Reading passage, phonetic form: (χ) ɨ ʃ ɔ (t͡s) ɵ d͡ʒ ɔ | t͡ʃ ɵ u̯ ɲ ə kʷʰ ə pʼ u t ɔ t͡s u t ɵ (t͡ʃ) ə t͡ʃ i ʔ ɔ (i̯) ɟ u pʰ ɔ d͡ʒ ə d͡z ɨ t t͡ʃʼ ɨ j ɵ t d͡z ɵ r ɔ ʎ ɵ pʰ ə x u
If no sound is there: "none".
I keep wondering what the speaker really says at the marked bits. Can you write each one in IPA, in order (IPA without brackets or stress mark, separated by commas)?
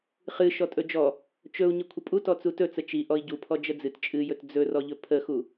χ, tʼ, t͡s, i̯